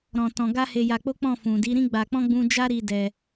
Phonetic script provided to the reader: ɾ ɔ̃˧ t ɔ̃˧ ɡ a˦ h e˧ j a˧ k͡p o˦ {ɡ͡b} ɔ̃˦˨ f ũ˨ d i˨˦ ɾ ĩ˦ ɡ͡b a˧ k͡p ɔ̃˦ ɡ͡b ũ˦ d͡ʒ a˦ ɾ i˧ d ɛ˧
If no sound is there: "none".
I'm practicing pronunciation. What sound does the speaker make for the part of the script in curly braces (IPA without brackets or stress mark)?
k͡p